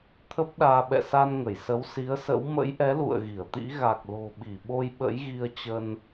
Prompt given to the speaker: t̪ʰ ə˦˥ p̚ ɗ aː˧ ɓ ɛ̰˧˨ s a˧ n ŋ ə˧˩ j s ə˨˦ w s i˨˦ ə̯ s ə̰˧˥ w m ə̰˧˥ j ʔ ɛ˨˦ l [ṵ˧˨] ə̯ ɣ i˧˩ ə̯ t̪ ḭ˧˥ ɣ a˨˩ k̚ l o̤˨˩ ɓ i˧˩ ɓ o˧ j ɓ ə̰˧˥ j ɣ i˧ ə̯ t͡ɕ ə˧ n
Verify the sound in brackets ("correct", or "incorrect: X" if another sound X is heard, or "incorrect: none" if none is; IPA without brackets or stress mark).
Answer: correct